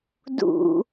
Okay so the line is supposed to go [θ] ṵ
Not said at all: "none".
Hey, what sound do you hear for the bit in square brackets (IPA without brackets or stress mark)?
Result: d